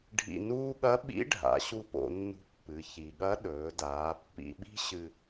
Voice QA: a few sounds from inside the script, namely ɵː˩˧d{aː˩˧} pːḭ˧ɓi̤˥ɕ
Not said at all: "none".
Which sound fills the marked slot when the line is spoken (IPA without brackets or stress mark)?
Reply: aː˩˧